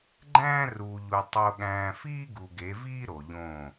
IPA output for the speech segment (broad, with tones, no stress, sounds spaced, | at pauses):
ɡ͡ǃ æ̃ː˦ r uː˨ ʎ u˨ tˤ o˨ ɠ æ̃ː˨ f iː˦ ɡ u˨ ɡ e˨˦ v iː˦ ɾ o˨ ʎ õ˦˨